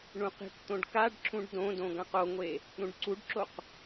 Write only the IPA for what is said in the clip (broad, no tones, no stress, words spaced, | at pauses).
ɳũqi̤kt̪õɖ kaɖǁũɖ dõdõ ɡãqoŋʷe | ɾũɖǀuɖǁoq